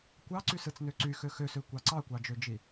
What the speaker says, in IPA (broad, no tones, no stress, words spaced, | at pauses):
kʷɑǀysɯt͡snø ǀyxø xøsøkʷɑ ǀɑkʷɑd͡ʒød͡ʒi